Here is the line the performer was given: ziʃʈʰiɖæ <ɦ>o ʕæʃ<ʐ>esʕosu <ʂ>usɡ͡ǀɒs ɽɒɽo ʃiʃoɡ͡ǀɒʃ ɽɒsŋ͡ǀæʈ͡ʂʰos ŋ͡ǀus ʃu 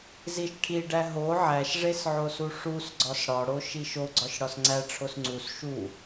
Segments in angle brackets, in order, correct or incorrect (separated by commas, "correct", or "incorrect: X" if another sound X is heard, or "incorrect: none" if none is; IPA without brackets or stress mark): correct, correct, correct